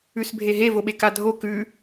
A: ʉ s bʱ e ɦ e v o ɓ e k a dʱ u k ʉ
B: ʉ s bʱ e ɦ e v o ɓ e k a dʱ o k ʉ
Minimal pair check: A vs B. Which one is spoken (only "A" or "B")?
B